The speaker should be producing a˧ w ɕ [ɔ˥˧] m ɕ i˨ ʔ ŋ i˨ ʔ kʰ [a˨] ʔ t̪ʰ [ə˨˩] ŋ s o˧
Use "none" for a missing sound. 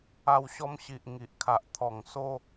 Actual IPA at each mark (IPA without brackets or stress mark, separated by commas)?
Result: ɔ˧, a˨, ɔ˨˩